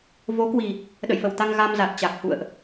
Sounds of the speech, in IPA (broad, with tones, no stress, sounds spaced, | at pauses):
v o˨˦ k w i˨˩ | ɗ ə̰˧˨ j f ə˨˩ w t̪ a˧ ŋ ɣ a˧ m z a˨˩ t̚ t͡ɕ a˨˩ k̚ h ṵ˧˨ ə̯ ʔ